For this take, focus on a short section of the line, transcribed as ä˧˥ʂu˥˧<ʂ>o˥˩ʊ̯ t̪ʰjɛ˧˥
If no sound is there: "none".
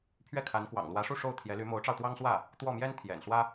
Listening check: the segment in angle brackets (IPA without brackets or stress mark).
ʂ